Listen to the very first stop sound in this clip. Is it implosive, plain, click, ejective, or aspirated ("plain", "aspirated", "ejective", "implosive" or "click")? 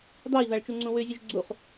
plain